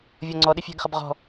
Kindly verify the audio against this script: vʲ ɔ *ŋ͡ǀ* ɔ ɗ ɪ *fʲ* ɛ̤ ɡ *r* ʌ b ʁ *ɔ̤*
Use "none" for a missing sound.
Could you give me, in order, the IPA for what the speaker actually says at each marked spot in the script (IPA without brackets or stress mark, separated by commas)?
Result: ŋ͡ǀ, fʲ, χ, ɔ̤